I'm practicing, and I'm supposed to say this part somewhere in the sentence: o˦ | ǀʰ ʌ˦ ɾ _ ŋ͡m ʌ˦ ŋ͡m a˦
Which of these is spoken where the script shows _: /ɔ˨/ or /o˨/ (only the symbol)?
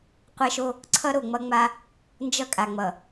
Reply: o˨